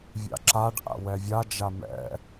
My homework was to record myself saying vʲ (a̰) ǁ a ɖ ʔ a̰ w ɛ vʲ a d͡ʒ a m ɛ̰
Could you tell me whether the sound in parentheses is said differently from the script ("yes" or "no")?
no